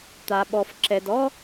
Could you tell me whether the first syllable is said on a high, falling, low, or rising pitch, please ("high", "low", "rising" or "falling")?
low